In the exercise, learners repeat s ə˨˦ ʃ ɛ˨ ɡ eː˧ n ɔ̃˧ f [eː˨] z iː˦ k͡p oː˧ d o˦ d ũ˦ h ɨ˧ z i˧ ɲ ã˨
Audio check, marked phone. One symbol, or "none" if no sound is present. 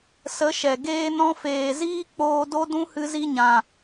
eː˨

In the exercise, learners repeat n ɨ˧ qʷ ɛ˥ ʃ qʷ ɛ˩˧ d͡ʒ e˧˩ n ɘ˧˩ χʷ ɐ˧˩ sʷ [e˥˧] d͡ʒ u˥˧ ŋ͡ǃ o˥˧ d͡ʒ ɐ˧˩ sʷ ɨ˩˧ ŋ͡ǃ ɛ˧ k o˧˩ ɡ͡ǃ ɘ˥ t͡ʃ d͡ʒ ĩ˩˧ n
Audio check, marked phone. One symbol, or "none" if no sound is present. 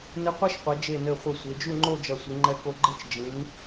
e˩˧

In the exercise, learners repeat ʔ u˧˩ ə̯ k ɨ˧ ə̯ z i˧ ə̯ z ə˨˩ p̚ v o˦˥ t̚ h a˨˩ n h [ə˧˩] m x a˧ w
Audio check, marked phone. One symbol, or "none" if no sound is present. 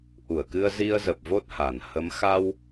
ə˨˦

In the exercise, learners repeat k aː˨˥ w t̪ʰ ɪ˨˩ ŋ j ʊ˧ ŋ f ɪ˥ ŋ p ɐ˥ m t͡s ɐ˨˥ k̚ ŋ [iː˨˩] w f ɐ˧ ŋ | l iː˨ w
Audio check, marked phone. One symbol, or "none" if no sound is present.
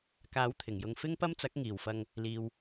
iː˨˩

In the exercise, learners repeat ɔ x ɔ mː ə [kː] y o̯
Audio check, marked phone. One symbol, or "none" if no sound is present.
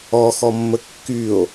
kː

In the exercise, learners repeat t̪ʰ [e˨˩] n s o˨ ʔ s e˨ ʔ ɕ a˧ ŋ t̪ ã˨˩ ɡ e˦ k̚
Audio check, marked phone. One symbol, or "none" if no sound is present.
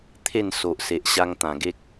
e˥˧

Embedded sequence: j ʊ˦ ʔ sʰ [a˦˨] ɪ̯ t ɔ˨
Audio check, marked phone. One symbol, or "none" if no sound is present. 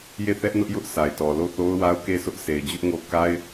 a˨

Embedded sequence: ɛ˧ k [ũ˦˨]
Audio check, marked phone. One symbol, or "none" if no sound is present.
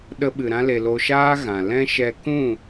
ũ˦˨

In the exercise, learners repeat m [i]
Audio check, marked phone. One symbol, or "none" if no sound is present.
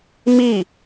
i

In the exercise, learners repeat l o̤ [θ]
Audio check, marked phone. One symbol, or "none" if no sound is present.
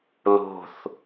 θ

